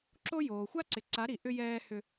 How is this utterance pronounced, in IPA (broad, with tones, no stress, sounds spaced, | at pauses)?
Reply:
ǁ o˦ j oː˨ xʷ a˦ ǀ ɪ˨ ǀ a˨˦ ɾ i˨ ʔ ʏ˦ j ɛː˦ h ʏ˦